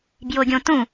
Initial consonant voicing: voiced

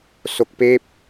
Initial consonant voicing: voiceless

